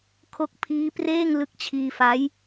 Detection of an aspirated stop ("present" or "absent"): present